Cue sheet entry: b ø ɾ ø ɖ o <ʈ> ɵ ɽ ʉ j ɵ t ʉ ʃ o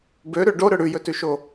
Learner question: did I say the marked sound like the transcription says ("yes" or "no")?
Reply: no